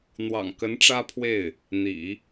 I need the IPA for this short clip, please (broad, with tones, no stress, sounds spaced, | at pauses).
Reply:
n̪ w ɑ̰˨˩ ŋ k ə˧˥ n ʈ͡ʂ ä˥ pʰ w e˥˩ ɪ̯ | n̪ ḭ˨˩˦